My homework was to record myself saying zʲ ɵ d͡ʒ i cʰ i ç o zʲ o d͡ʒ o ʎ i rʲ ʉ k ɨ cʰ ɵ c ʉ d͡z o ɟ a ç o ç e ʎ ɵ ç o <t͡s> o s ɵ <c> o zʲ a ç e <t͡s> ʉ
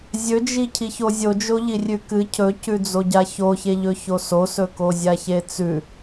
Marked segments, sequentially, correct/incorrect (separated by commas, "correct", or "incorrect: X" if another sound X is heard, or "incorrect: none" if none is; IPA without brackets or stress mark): incorrect: s, incorrect: k, correct